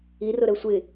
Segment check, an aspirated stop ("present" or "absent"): absent